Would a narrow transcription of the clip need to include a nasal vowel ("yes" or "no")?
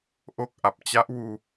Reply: no